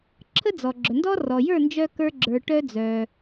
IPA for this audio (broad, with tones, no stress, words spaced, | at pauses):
ǁʰə˥d͡zɔ˩ ɡ͡ǁœ˩ndɔ˥rɔ˩ jə˞˥˩nd͡ʒœ˧ kə˞˧ɡ͡ǁə˞˩ ʈœ˧d͡zœ˩